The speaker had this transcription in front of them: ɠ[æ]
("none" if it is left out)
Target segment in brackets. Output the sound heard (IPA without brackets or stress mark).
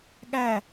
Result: æ